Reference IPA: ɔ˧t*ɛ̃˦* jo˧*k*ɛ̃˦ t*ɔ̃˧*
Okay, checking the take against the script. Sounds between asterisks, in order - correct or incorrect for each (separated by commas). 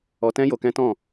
correct, correct, incorrect